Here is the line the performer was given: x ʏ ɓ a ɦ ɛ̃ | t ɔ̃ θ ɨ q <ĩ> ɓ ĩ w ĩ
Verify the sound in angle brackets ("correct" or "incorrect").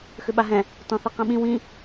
correct